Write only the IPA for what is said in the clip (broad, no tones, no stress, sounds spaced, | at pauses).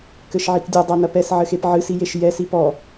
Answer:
k ɘ ʃ ʕ i k dʲ ɐ dˤ a n ɐ p ɛ s ʕ ɘ x e p ʕ ɨ s i j e ʃ j ɛ s i p ɔ